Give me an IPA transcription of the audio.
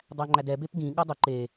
dˤ æ ŋ͡ǃ æ d ɛ b e p ɡ ĩ ɠ ɤ dˤ ʊ ǃ e

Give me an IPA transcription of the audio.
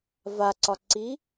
v a ǀ ɒ ǀ i

